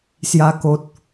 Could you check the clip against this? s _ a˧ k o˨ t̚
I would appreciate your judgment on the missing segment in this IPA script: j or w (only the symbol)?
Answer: j